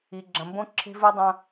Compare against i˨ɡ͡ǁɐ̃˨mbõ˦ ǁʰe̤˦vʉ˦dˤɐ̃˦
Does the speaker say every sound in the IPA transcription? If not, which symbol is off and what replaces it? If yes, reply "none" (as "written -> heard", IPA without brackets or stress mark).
none